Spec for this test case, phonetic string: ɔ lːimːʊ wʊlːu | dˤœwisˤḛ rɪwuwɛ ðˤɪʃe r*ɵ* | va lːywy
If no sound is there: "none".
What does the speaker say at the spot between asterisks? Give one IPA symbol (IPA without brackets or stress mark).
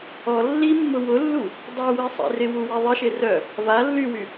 œ